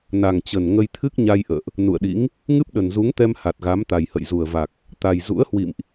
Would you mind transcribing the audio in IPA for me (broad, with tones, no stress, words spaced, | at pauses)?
na˨˩ŋt͡ɕə˨˩n ŋə˧jt̪ʰɨ˦˥k̚ɲa˧j ʔə̰ː˧˨ʔ | nṵ˧˨ə̯ɗḭ˧˥ŋ | ŋɨ˦˥p̚ɗə˨˩nzu˨˦ŋt̪ɛ˧m ha˨˩t̚ɣa˨˦m t̪a˨˩jhə̰˧˨jzu˨˩ə̯va˨˩k̚ | t̪a˨˩jzṵ˧˥ə̯hwḭ˧˨mʔ